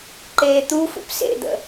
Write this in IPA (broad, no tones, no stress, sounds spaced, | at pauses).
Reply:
ǃ eː t̪ u f ṵ p s ḛ d̪ ə̰